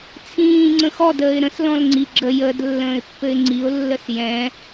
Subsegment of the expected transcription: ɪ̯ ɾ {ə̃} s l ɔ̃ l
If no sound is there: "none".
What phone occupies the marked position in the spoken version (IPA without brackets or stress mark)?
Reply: ə̃